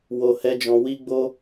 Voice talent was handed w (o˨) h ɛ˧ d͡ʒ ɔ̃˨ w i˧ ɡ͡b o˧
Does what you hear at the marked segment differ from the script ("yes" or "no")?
no